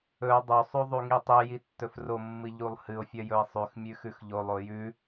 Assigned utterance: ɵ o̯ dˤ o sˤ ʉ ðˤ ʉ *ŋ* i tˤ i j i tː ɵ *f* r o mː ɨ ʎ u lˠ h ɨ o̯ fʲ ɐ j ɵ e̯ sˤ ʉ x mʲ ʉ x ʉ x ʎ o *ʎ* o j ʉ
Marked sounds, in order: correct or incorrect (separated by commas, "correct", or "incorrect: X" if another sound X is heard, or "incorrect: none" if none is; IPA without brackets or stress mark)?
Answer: correct, correct, incorrect: lˠ